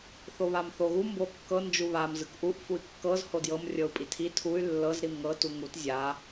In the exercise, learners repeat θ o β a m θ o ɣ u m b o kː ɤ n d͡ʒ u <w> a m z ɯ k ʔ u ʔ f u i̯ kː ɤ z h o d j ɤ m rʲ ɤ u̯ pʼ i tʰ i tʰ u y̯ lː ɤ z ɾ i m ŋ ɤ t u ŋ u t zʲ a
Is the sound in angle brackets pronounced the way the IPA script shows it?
no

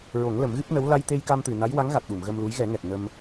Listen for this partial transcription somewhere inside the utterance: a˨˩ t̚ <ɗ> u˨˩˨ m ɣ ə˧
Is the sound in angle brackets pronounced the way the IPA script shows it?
yes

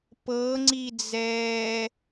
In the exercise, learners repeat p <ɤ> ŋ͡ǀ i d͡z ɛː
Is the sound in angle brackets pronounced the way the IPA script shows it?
yes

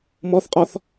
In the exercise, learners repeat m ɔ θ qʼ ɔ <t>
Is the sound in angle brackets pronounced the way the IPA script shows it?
no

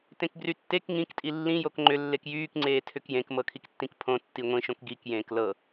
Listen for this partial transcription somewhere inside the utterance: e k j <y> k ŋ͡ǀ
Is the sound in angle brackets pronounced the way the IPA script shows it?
no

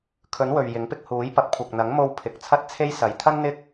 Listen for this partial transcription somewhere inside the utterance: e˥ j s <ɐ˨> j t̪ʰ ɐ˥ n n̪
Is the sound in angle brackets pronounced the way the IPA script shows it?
yes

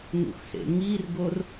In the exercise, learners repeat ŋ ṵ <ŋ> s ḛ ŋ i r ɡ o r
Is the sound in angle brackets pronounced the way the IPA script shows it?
no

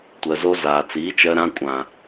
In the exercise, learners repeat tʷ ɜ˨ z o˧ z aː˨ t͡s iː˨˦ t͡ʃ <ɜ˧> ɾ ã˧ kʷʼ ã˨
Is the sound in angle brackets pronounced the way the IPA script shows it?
yes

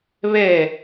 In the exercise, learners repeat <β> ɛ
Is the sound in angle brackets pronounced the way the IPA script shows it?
yes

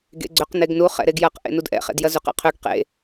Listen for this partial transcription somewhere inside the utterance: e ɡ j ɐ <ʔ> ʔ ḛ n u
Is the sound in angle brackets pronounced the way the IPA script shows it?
no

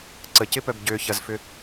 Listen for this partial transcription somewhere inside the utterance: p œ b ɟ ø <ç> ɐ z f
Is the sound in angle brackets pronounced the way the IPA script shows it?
yes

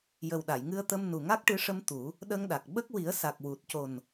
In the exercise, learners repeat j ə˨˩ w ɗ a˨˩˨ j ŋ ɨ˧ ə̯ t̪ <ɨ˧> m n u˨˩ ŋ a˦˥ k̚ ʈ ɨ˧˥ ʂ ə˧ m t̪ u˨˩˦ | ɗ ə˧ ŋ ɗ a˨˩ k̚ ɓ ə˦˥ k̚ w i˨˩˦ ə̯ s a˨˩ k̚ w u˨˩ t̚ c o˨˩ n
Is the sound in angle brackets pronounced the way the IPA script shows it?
no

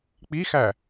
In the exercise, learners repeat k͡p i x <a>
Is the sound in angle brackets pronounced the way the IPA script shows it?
no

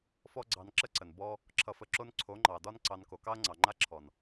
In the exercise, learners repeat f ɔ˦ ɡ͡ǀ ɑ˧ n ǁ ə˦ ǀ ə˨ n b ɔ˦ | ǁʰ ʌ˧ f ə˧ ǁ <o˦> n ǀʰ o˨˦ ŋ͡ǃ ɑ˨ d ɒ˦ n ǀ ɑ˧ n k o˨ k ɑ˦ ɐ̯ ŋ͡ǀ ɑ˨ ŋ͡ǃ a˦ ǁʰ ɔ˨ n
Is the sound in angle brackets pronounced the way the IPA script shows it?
yes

